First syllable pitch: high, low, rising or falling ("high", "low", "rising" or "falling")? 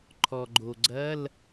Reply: low